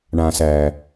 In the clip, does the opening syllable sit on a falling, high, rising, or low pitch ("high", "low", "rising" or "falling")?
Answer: low